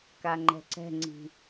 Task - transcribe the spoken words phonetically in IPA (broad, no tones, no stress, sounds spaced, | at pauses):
k a ŋ͡ǃ ɛ̤ ǀ ɛ̤ ŋ͡ǀ i̤